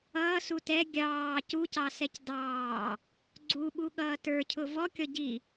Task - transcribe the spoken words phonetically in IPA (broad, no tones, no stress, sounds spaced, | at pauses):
ʌː s u t ɛ ɡʲ ɑː c u c ɑ s ɛ c d ɑː | ɡ͡ǀ u ɓ u ɠ ʌː t ə˞ cʰ ʊ v ɔ kʲ ɔ ɟ i